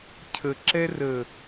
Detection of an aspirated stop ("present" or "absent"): present